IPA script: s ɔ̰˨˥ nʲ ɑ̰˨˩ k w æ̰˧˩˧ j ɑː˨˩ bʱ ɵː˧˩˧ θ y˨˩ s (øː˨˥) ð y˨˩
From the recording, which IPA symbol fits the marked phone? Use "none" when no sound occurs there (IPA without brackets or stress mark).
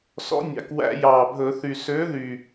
øː˨˥